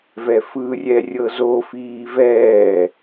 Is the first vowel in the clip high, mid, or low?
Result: mid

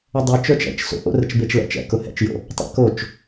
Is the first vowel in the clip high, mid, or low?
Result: mid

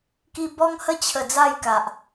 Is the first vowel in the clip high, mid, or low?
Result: high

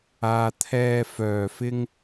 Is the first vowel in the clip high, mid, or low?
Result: low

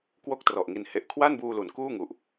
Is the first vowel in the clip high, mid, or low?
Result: mid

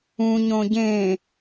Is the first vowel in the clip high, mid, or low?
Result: high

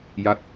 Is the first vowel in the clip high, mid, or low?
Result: low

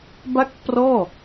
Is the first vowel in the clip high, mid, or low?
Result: low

